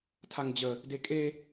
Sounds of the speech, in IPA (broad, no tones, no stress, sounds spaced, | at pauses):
tʰ a ŋ d͡ʑ ə | d e kʼ e